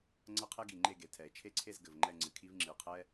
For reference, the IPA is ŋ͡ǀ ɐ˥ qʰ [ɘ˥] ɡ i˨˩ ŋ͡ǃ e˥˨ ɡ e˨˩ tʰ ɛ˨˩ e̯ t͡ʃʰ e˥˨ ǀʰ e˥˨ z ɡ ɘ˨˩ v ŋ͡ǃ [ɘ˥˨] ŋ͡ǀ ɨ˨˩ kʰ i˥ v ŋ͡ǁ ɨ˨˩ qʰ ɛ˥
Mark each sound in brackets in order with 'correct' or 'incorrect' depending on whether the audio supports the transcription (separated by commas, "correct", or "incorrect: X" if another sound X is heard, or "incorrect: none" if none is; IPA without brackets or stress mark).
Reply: incorrect: ɛ˥, incorrect: ɛ˥˨